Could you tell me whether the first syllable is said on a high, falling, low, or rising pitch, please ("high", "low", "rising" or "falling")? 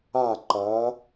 falling